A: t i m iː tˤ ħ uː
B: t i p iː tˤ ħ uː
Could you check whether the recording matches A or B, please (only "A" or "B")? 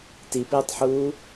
B